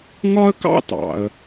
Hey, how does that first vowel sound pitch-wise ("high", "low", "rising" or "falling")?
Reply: high